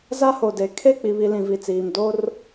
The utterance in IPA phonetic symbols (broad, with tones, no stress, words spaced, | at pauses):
za˦ho˨de˨˦ kʰe˦˨k͡pi˨βi˨ lĩ˨vi˨t͡siː˨m do˦r